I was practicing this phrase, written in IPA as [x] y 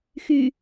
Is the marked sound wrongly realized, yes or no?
no